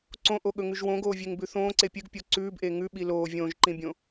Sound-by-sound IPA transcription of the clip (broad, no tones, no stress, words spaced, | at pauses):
ǀõʔoɠɵŋʉʒ wõɡoːvʲeŋbʉ θõːǀe pʲɨɡpʲo ǀʉːbʔe ŋʉɓi loː vʲõːʒǃĩbʲõ